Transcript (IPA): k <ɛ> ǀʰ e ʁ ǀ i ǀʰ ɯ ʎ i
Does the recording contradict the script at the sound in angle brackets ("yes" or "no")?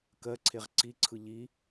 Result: yes